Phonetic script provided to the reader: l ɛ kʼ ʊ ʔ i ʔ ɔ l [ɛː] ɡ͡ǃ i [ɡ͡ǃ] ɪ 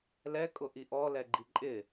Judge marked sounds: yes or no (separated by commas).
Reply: no, no